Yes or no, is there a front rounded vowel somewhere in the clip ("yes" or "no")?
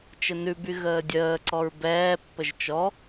yes